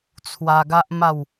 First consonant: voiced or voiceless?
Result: voiceless